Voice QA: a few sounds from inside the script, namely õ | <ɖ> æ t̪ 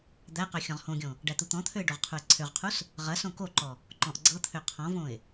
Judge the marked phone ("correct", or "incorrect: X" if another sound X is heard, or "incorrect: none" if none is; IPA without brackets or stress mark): correct